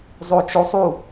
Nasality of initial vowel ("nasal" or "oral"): oral